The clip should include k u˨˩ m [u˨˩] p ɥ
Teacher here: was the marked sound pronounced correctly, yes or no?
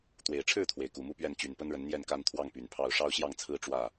no